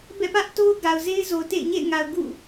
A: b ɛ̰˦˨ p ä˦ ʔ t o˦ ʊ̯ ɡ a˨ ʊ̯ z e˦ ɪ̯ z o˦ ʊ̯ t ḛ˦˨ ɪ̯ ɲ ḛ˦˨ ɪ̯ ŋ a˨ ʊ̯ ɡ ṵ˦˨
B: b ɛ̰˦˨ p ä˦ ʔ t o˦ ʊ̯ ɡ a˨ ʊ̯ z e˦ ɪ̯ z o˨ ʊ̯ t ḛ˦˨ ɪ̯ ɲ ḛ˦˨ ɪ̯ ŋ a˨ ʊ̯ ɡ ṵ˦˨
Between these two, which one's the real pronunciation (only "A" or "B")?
B